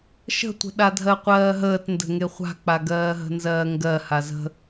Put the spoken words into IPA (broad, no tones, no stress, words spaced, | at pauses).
ʃə̤tʷə̤ ɗadʱɜqʷɜːɦəːt ndə̤ŋeχʷa̤k͡pa ɡɜːɦə̤nzɜːŋɡɜ hazə̤